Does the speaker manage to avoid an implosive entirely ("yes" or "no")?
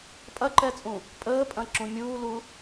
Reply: yes